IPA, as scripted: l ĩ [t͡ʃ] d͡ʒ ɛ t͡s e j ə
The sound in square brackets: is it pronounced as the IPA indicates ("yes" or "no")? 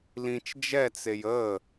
yes